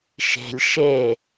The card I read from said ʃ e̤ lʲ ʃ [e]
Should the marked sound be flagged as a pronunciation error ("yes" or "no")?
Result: no